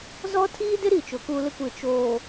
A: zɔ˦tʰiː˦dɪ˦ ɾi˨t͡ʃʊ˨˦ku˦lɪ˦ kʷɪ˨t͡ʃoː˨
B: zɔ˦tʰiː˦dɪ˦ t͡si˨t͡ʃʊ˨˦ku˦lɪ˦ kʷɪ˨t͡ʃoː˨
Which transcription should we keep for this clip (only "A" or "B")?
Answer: A